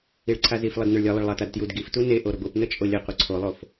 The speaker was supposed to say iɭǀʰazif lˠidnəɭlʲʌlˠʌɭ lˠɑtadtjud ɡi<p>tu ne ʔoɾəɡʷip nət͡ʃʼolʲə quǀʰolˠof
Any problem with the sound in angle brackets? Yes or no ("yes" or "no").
yes